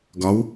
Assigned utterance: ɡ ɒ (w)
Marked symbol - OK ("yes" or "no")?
yes